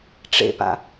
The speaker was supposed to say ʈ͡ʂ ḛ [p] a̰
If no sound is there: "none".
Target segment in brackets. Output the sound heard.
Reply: p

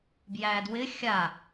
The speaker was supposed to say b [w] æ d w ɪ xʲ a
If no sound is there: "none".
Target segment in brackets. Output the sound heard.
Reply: j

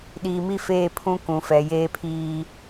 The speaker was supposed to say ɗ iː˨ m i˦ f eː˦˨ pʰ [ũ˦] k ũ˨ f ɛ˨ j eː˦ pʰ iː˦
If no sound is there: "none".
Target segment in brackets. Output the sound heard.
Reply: ũ˦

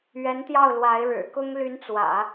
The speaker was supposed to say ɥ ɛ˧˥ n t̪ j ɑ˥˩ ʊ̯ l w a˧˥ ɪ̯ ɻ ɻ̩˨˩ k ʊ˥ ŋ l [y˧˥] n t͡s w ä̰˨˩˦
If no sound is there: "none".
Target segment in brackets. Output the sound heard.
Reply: y˧˥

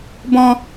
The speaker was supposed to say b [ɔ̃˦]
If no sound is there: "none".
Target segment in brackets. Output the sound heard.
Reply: ɔ̃˦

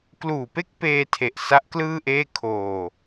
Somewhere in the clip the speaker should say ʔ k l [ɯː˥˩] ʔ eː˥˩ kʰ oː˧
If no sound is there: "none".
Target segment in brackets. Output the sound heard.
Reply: ɯː˥˩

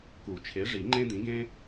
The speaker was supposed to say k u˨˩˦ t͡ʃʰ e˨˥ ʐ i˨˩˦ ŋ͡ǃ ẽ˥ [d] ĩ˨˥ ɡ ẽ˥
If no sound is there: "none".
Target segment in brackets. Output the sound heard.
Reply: d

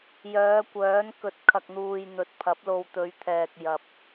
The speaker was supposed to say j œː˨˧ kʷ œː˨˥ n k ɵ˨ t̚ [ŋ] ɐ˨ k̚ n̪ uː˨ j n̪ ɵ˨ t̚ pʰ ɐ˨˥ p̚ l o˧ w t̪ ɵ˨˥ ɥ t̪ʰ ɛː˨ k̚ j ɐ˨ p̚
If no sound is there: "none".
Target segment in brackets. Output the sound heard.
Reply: kʰ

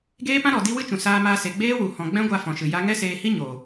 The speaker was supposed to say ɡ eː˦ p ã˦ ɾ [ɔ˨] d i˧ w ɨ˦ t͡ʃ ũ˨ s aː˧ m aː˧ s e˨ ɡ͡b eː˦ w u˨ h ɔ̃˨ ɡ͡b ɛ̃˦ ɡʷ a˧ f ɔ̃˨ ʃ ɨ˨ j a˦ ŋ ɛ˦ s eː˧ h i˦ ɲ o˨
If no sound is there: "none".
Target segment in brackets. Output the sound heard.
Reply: ɔ˨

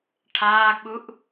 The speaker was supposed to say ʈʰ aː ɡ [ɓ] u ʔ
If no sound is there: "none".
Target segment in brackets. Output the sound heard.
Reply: ɓ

